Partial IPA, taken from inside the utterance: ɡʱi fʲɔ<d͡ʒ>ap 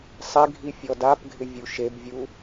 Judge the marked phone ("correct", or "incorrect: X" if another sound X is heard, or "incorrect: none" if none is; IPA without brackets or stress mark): incorrect: d